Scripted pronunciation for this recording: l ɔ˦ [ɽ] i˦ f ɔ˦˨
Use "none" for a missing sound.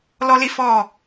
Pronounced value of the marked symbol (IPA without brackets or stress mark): l